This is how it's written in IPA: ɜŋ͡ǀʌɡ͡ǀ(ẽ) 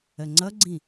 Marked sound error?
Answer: yes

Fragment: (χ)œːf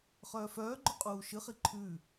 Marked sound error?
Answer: no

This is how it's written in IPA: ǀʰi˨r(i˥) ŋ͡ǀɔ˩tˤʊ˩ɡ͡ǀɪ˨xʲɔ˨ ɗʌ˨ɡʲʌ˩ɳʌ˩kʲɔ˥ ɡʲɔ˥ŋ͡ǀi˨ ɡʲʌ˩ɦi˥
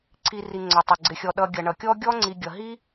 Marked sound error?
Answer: yes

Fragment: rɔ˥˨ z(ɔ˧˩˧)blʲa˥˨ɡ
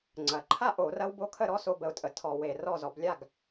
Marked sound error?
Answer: no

